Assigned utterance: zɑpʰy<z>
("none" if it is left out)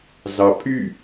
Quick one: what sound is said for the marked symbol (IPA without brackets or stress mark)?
none